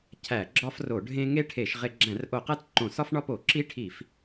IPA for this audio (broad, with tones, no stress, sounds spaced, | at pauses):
cʰ æ˧˩˧ ɡ͡ǁ ɒ˦ f r o˧˩˧ ɖʱ ẽ˦ ŋ e˦ ʈʰ e˧˩˧ ʃ ʁ e˧˩˧ ɡ͡ǁ æ̃˧˩˧ r ʔ o˧˩˧ q æ˦ t ǃ õ˧˩˧ s ɒ˦ f ɳ ɒ˦ p o˧˩˧ ǁ i˦ ʈʰ i˧˩˧ f